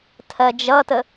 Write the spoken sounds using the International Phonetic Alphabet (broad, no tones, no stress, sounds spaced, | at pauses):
tʰ ɜ d͡ʒ ʌ t ə